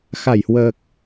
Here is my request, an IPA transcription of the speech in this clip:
x a˧˩ j h w əː˨˩ k̚

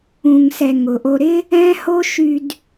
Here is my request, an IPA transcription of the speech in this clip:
ũ˨ ŋ s ɛ˨ ŋ ʊ˨ ʔ o˧ ɾ ɪ˦ | ɛ̃˦ h o˦ ʃ y˧ d

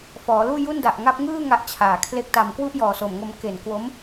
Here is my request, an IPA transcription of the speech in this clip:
f ɔː˩˦ l uː˥˩ j u˥˩ n d a˨˩ ʔ ŋ a˦˥ p̚ ŋ ɯː˥˩ ŋ a˦˥ ʔ t͡ɕʰ aː˨˩ kʰ l e˦˥ k̚ t a˧ m k w u˥˩ ʔ j ɔː˨˩ s o˨˩ m ŋ o˧ m k e˨˩ n k w o˦˥ m

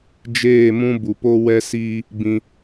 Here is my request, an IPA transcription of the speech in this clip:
d͡ʒ eː˦˨ m ũ˦ b u˨ p o˦ w ɛ˦ s iː˦ | b ĩ˧

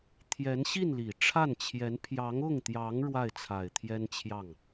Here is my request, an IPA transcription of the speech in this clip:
t̪ʰ j ɛ˧˥ n ɕ i˥˩ n l i˨˩ ʈ͡ʂʰ a˥˩ n t͡ɕʰ j ɛ˧˥ n pʰ j ɑ˧˥ ŋ ʊ˥˩ ŋ t̪ j ɑ˧˥ ŋ ɻ w a˥˩ ɪ̯ t͡sʰ a˨˩ ɪ̯ t̪ʰ j ɛ˥ n t͡ɕʰ j ɑ˥˩ ŋ

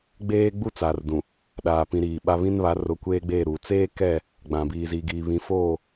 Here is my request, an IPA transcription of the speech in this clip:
ɡ͡b eː˦ ɡ͡b u˦ t͡s aː˨ r d ũ˨ | ɗ aː˨ p ĩ˨ ɾ iː˨ ɓ a˦ β ĩ˦ n β a˨˦ r ʊ˨˦ kʷ eː˦ ɡ͡b eː˦˨ ɾ uː˨ t͡s eː˦ k ɛ˦˨ | ɡ͡b ã˨ b iː˨ z i˨ ɡ iː˨ β ĩ˨ f oː˦˨

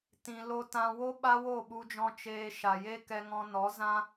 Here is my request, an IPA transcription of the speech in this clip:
t ĩ˧ l o˧ t ã˧ w o˦ ɓ a˦ w o˦˨ ɓ u˧ d͡ʒ ɔ̃˧ t͡ʃ eː˧ ʃ a˨ j e˦ k ɛ˧ ŋ ɔ̃˧ n ɔ˨˦ z ã˦

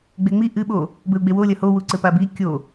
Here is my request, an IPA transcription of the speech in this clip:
ɡ͡b e ŋ͡m i ʔ ɨ ɓ o | b ɘ u̯ ɡ͡b e w o lʲ ɐ h o w u ǀ ɘ p a b i kʲ o

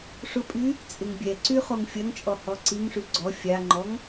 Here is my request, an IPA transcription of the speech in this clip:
ʂ ʊ pʼ y | t͡sʼ ɪ ŋ bʲ ɛ ǀ y χ o ŋ fʲ ɐ ŋ t͡ʃʼ ɔ h ɔ ǀ i ŋ ʂ y ɡ͡ǀ ɔ fʲ a ŋ͡ǃ ɔ ŋ

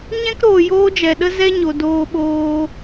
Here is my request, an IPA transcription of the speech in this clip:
ɲ ɛ̃˦ k ɾ oː˨ j oː˦ d͡ʒ ɛ˨ ɗ ə˦ z ɛ˦ ɲ o˨ d oː˧ ɓ oː˧

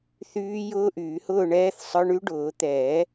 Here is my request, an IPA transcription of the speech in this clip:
θ yː˦˥ j ʊː˦˥ ʔ yː˨˩˦ h ʊː˥˨ ɳ ɛː˦˥ θ sˤ ə˞˧˥˧ ɳ y˦˥ ɖ ʊː˨˩˦ t̪ ɛː˨˩˦

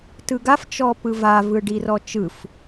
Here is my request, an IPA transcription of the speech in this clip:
t ɯ ɡ a f t͡ʃ ɔ p ɯ v a v ɯ ɖ i r ɔ t͡ʃ ɯ f

